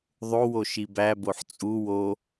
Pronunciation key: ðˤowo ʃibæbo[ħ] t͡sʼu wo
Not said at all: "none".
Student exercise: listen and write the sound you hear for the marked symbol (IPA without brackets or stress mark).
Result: ħ